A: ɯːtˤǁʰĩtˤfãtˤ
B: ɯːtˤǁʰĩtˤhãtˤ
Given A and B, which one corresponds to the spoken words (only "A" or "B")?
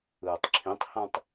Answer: B